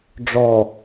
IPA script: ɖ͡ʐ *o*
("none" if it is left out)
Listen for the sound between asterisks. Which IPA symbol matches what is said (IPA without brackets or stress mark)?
ɔ